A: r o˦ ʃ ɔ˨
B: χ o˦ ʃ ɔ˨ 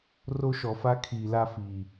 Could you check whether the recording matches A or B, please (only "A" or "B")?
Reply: A